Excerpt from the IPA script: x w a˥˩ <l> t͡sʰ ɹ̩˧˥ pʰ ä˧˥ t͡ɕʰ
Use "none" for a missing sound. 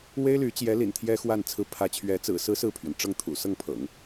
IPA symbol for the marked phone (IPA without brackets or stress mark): n